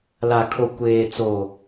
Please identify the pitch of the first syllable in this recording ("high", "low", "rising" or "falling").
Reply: low